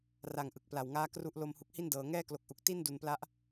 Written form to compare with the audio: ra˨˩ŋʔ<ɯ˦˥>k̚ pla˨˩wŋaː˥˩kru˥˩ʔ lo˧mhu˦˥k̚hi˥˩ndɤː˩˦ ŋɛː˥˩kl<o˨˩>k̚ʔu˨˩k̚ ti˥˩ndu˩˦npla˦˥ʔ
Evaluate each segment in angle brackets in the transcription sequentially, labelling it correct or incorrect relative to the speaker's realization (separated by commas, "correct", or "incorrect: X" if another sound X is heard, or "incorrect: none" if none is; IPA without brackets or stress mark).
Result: incorrect: ɯ˨˩, correct